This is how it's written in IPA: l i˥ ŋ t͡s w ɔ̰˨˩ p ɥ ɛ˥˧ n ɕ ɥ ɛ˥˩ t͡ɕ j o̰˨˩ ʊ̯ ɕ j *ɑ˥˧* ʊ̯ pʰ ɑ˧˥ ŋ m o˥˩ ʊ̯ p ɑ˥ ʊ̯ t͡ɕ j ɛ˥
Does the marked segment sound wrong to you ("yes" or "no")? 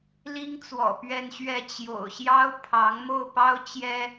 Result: yes